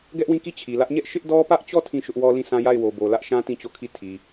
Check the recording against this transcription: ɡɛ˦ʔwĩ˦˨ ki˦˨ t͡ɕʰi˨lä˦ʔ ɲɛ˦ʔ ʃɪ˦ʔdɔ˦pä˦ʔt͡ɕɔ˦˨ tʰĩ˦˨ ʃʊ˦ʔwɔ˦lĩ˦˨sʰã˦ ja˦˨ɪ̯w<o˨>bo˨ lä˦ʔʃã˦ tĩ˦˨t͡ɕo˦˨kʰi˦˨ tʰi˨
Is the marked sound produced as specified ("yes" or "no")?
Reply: yes